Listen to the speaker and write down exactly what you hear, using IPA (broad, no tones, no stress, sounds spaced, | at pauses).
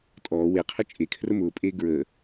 tʼ ɔː w e qʰ ə t͡ʃʼ e kʰ r ə m ʊː pʼ eː ɡ ɹ əː